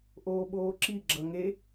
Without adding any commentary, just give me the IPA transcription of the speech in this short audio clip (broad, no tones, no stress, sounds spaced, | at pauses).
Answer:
ʔ oː ɓ oː ǁ i ɡ͡ǁ ʌ ŋ e